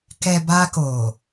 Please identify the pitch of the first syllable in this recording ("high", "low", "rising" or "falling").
low